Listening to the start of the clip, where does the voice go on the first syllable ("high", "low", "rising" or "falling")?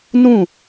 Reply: falling